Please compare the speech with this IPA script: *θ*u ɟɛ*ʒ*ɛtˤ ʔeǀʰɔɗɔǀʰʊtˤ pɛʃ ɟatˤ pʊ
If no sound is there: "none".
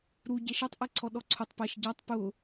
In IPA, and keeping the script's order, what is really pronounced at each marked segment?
ɾ, ʃ

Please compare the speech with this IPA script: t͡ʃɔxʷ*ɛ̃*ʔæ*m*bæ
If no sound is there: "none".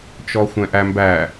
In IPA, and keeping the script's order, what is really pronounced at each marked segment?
ɛ̃, m

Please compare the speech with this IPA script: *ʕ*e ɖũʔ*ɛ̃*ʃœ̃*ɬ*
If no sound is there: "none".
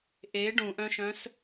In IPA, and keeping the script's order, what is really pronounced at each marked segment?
ʔ, œ̃, s

